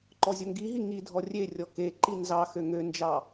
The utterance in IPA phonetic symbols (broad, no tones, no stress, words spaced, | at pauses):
ǃɔzʲoŋɡiɦi ŋi dʱɔrʲerʲɔ keǃi nzɑxø ŋønd͡ʒɑ